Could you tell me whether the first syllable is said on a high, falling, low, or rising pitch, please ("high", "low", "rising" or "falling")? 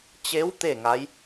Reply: rising